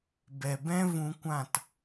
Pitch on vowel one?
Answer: low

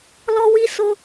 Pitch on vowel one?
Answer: high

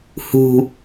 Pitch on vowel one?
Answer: low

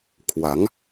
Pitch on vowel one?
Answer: rising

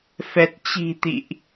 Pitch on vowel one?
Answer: low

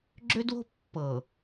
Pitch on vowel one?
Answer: high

